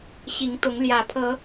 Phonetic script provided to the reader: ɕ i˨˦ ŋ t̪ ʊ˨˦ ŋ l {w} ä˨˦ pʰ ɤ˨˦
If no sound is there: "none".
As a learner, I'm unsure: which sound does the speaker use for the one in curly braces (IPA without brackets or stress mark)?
j